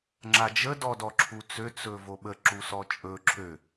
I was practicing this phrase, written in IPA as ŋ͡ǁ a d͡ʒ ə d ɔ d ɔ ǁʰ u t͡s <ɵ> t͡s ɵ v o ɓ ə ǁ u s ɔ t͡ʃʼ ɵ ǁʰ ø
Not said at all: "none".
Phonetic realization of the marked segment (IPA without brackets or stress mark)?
ø